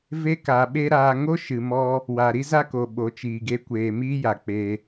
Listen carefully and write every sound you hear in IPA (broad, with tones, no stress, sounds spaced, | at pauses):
v e˧ k a˨ ɓ e˧ ɾ aː˧ ŋ o˦ ʃ ɨ˨ m ɔ˧ | w a˨ ɾ i˦ z a˦ k o˨ ɓ o˨˦ t͡ʃ iː˨ ɡ e˧ kʷ eː˨ m iː˦ j a˨ k͡p e˧